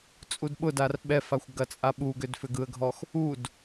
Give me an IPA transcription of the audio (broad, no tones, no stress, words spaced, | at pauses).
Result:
t͡sʼudɓʊdar ɓɛfaxʷ ɡɐt͡sʼaɓuɡʏd fʏɡɯə̯ɡʱɔx | ud